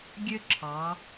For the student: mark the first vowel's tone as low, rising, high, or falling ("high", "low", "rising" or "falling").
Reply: high